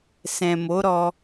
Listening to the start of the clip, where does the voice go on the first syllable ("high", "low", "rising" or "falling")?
low